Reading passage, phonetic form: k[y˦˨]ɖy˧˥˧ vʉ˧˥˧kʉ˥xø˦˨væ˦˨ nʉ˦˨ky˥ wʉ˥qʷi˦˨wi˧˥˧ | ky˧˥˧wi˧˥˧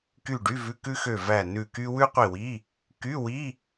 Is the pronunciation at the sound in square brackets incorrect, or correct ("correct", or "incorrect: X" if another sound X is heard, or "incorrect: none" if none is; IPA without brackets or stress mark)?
correct